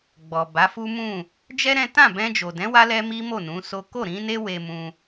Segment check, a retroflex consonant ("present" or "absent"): absent